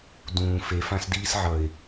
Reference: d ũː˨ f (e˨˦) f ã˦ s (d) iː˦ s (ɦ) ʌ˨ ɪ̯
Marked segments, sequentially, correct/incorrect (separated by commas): correct, correct, incorrect